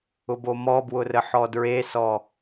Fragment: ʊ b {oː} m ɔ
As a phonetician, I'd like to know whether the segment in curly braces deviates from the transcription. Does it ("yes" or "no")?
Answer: yes